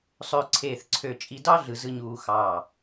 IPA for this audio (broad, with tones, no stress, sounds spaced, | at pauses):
sˤ øː˧ ǀʰ eː˧˩ θ ǀʰ ø˧˩ t͡ʃʼ i˧ d ɑ˥ ɮ ɯ˩˧ z ɯ˧ ɲ uː˧ x ɑː˧˩